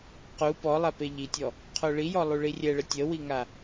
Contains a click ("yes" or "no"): no